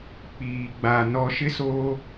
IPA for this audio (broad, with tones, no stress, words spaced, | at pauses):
k͡piː˨ɡ͡ba˨ nɔ˨ʃɪ˦soː˦